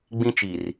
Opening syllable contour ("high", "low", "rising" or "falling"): high